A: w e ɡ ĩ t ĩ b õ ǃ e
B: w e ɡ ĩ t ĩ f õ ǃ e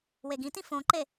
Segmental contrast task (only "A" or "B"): B